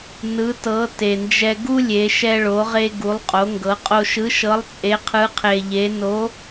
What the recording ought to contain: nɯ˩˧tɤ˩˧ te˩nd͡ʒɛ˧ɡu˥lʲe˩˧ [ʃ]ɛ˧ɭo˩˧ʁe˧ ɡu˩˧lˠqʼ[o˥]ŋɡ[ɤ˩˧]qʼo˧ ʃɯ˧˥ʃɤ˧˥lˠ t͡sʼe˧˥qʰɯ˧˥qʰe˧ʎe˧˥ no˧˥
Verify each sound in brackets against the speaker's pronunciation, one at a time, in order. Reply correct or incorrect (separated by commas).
correct, incorrect, correct